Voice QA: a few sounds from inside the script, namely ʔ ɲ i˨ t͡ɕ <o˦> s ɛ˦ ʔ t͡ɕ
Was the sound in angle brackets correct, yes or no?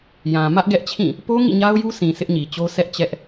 yes